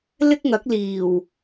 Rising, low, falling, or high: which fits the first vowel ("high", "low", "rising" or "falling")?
high